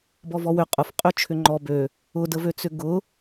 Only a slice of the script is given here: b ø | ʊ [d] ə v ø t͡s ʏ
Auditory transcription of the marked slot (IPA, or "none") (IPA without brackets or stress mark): d